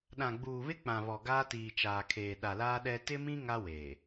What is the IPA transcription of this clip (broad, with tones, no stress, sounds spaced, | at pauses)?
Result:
ɗ ã˨ ɡ͡b uː˨ β ɪ˦ k͡p ã˨ β ɔ˨ ɡ aː˦ t iː˨ t͡ʃ aː˨ kʰ eː˨ ɗ a˨ l aː˦ ɗ ɛ˦ t ɪ˦ m ĩ˦ ŋ a˦ w eː˨